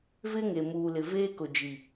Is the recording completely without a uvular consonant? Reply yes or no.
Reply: yes